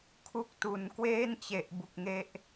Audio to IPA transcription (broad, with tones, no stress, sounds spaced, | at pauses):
kʰ u˦˥ k̚ t u˨˩ n k w eː˥˩ n t͡ɕ e˨˩ ʔ b u˨˩ k̚ ŋ e˦˥ ʔ